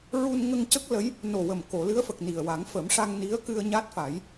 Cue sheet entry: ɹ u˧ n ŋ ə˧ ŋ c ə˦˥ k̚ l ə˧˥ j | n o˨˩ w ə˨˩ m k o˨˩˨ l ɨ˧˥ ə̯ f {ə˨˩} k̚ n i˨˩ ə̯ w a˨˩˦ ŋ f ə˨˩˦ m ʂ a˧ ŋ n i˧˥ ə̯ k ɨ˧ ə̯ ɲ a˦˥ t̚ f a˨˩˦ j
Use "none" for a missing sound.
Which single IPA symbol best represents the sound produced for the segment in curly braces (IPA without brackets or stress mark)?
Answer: ə˨˩